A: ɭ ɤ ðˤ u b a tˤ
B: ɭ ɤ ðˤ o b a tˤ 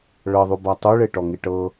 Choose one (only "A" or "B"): A